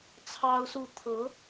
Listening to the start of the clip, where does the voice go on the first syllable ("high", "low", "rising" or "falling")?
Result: high